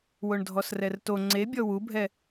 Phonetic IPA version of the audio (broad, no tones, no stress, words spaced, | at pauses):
woɳdʱɔsrɛrto ŋ͡ǀebʲɔ wubʱɛ